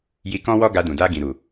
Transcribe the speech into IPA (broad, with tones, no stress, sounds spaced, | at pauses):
j i˧ k ɔ̃˦ w ɔ˦ ɡ a˧ d ũ˨ d a˧ ɡ ĩ˨ ɾ u˨